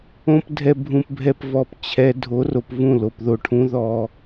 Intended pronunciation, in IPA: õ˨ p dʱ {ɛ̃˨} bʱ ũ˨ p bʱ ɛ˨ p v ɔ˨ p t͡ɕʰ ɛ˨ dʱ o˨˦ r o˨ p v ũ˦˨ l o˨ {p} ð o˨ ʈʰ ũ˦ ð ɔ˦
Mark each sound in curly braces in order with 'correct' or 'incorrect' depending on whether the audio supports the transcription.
incorrect: ɛ˨, correct

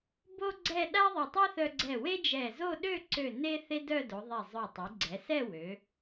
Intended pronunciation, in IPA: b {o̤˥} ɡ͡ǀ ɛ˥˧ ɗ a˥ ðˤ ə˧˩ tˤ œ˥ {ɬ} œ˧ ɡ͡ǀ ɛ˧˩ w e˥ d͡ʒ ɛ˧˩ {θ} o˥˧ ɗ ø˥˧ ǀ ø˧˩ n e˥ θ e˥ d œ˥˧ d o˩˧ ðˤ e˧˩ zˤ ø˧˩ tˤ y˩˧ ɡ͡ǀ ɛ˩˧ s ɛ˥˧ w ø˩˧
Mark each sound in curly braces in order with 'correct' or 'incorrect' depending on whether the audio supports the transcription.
incorrect: o˥, incorrect: θ, incorrect: z

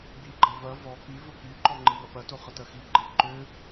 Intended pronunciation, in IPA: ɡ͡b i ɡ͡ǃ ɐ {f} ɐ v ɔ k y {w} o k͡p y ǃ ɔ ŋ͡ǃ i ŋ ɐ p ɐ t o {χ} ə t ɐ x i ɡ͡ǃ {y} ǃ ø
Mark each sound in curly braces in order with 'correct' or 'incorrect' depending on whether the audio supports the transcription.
incorrect: v, incorrect: v, correct, incorrect: e

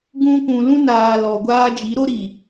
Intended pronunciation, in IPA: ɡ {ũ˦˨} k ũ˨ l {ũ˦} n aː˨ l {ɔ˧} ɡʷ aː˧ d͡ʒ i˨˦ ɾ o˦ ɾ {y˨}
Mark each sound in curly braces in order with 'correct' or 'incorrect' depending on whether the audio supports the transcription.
incorrect: ũ˧, incorrect: ũ˧, incorrect: ɔ˨, incorrect: i˨

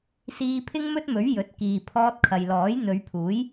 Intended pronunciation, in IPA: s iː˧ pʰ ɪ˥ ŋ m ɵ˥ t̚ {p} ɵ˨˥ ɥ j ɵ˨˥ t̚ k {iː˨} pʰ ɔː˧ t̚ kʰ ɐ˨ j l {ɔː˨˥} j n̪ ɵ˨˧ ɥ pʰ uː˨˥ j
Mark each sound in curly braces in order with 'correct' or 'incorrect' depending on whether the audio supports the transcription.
incorrect: m, correct, correct

